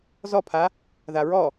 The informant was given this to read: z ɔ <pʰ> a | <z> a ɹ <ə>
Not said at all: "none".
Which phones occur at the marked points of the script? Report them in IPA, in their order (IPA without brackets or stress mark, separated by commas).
pʰ, ð, ɔ